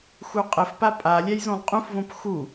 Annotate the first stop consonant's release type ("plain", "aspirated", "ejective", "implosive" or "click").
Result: ejective